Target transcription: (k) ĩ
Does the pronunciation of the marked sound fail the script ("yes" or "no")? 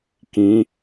no